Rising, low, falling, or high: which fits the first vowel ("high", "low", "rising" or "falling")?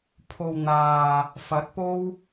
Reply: low